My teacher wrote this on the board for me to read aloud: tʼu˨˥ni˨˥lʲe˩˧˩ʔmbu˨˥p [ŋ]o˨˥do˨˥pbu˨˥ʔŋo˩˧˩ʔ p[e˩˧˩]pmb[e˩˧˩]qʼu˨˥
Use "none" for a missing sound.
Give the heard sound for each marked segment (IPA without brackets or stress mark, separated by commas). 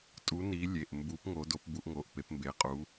ŋ, e˨˥, e˩˧˩